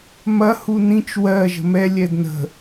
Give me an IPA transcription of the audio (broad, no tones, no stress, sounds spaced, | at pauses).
m ɐ h u n ĩ t͡ʃ w ɜ ʒ ə̤ m ɛ lʲ ɛ d n ə̤